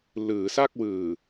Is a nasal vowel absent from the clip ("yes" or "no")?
yes